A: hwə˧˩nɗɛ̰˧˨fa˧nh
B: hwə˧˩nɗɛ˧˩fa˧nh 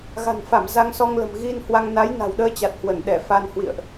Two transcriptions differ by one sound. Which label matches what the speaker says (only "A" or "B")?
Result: B